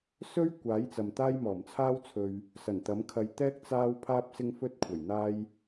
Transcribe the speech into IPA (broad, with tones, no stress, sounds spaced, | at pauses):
s ɵ˥ ɥ kʷ aː˨˥ j t͡s ɐ˨ m t̪ aː˥ j m ɔː˨˩ m t͡sʰ aː˥ w t͡sʰ ɵ˧ ɥ | s ɐ˨˩ n t̪ ɐ˨˥ m kʰ ɐ˧ j t̪ ɛː˥ k̚ t͡s aː˥ w pʰ aː˧ p̚ s ɪ˧ ŋ f ɵ˧ t̚ kʷʰ ɐ˨˩ j n̪ aː˥ j